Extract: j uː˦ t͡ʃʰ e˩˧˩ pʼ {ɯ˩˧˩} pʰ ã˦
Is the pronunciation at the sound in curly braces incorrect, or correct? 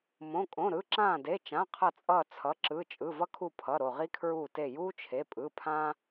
correct